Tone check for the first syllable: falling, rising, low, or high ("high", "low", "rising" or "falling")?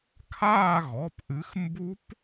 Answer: falling